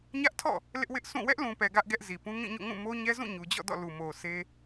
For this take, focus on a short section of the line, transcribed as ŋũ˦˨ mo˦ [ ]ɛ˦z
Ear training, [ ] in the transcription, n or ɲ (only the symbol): ɲ